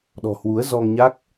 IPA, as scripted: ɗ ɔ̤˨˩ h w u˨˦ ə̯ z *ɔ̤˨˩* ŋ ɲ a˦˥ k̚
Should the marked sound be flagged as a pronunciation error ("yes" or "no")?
yes